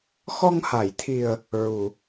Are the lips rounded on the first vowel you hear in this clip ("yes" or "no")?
yes